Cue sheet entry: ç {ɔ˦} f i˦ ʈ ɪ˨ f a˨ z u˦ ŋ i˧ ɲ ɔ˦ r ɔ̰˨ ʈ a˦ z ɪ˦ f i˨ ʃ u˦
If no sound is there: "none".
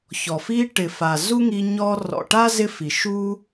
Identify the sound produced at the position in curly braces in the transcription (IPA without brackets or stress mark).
ɔ˨